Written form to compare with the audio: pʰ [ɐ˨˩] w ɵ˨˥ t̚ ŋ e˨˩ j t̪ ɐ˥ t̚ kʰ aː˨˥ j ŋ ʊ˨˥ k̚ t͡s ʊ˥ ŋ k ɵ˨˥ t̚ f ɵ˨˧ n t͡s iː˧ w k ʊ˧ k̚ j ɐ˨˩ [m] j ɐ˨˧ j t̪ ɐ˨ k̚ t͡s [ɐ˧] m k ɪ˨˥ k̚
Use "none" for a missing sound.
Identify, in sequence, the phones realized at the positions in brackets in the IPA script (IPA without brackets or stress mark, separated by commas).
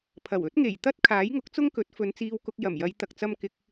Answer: ɐ˨˩, m, ɐ˧